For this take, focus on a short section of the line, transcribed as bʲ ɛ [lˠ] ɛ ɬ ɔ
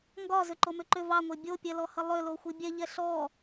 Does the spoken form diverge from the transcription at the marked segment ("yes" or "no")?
yes